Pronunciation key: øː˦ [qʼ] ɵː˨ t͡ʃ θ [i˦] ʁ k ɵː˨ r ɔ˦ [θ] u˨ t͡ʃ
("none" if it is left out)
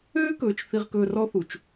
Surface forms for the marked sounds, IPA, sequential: k, i˨, θ

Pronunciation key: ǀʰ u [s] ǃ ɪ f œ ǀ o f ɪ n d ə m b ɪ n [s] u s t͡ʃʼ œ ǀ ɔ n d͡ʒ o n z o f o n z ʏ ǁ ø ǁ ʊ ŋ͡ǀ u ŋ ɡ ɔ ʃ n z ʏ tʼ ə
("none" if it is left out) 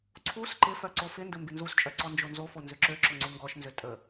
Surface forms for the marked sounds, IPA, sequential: s, z

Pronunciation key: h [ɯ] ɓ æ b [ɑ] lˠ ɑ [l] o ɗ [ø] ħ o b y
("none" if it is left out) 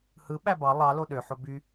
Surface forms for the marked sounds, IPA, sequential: ɯ, ɑ, l, ø

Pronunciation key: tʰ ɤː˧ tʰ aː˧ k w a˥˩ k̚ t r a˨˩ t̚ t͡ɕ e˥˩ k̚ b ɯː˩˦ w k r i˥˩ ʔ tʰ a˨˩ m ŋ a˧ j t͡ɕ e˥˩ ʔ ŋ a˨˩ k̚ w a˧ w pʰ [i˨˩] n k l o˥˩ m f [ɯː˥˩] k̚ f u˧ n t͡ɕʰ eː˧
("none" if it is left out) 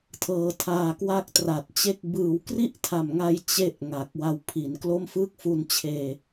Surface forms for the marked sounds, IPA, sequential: i˩˦, ɯː˥˩

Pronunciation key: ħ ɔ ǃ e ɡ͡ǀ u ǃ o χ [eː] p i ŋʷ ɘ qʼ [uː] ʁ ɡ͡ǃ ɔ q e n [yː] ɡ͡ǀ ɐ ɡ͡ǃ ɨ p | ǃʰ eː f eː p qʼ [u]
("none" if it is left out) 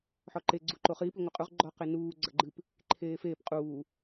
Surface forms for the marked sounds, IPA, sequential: iː, u, uː, uː

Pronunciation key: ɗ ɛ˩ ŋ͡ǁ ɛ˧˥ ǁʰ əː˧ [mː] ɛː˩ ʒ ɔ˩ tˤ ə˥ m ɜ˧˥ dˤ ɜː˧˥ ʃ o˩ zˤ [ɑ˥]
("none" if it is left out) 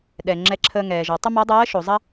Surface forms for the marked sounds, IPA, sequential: ŋ, ɐ˥

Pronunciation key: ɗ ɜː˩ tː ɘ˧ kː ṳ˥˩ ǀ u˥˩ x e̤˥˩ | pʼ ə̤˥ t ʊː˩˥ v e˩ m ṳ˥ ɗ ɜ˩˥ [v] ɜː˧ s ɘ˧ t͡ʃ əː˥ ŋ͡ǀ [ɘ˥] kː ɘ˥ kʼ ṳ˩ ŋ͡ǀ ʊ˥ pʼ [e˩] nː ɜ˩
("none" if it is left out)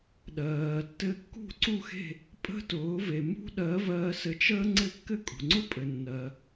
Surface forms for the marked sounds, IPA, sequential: v, ɘ˥˩, ɘ˩

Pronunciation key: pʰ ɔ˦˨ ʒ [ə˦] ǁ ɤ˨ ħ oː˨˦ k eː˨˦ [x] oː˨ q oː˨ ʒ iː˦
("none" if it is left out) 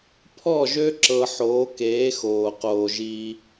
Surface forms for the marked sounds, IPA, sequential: ø˦, x

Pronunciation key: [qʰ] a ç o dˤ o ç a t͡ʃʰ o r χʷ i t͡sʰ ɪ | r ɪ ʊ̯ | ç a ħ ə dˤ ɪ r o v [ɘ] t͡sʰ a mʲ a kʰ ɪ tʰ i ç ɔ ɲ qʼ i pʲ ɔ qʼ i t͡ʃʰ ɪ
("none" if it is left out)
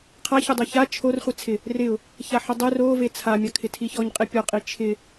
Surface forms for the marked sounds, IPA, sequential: qʰ, e

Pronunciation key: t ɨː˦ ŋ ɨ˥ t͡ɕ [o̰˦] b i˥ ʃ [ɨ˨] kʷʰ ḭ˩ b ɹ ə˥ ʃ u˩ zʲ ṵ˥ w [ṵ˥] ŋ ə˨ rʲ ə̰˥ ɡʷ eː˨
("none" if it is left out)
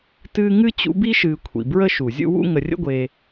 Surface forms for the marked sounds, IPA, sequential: ṵ˦, ɨː˨, ṵ˥

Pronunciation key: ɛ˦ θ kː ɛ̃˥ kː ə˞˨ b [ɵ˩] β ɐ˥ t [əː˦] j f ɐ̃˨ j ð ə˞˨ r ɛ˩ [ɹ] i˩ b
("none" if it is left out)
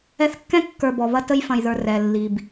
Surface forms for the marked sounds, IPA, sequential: ɔ˩, ə˦, lː

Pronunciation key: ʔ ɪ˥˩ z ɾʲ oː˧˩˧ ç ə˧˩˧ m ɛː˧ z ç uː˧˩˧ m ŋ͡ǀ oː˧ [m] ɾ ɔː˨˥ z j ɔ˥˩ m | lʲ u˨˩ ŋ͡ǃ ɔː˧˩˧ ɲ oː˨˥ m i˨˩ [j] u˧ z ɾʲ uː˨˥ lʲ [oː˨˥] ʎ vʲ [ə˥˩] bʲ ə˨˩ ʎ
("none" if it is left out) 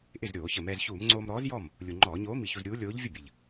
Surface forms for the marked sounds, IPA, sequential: m, ç, oː˨˥, ə˥˩

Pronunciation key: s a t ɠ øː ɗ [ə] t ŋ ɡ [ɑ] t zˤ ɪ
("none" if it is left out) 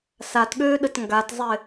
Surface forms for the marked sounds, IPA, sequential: ə, a

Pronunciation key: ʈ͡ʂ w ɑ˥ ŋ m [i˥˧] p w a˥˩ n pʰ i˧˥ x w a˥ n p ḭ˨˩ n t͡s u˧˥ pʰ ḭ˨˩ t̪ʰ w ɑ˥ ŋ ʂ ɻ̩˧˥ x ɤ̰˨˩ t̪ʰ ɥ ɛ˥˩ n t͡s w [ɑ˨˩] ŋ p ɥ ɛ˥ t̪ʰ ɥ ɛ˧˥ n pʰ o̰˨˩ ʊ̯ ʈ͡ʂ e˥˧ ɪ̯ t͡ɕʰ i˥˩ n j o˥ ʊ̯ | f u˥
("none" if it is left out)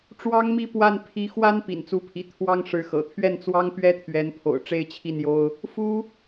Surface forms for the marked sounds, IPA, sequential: i˥˧, ɑ˥

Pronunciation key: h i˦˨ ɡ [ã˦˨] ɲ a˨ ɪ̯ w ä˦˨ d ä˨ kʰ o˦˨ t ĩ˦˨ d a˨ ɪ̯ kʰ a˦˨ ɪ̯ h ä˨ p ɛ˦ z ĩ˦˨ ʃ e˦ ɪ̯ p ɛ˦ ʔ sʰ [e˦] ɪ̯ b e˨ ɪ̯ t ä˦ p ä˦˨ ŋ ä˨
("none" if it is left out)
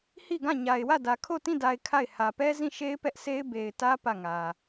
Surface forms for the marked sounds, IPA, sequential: ã˦˨, e˦

